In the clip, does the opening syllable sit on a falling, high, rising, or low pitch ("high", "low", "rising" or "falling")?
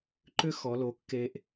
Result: high